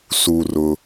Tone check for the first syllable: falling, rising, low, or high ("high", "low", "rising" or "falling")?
low